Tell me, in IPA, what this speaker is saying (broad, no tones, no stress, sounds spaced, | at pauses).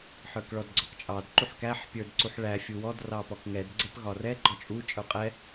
ħ ə˞ k ɭ ɔ d ɡ͡ǀ ɔ k t͡ʃʼ ɑ d ǃ u ħ k æ ħ pʲ ə˞ d ǀ u ħ ɭ æ fʲ u w ɔ d r ɑ p ɔ k ŋ ɛ d ɡ͡ǀ ɛ p ɣ ɒ r ɛ ɡ͡ǃ ɔ t͡ʃʼ u t͡ʃʼ ə˞ qʼ ɛ